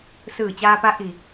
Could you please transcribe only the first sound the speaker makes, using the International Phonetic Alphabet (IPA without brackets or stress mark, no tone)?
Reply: s